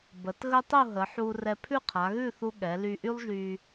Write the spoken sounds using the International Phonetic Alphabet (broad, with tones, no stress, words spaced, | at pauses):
bə˩˧t ɣə˥tˤu˥˧ɦə˩˧ħu˧ rɛ˧ pʰʉ˥˧qʰa˩˧ɣʉ˥˧θu˧ ɠɛ˩˧ly˧ʔy˥lˠʒy˧